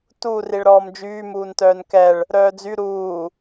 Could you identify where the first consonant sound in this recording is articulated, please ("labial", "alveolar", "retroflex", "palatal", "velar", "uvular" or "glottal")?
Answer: alveolar